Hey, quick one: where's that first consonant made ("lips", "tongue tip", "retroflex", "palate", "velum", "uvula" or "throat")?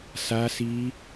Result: tongue tip